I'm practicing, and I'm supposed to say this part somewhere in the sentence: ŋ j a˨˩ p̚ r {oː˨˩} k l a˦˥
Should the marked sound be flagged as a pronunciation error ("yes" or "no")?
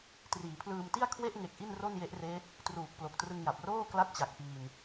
yes